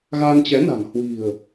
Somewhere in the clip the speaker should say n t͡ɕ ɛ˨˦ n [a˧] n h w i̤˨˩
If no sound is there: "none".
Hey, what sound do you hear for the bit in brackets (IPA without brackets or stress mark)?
a̤˨˩